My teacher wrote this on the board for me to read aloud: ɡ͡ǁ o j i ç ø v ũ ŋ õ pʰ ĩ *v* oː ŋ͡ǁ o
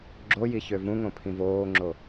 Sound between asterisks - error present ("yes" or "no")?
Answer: no